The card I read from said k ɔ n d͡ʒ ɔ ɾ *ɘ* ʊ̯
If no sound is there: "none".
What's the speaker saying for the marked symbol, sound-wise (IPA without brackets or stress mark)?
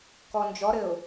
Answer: ɘ